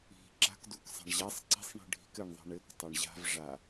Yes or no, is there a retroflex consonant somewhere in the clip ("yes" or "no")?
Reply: yes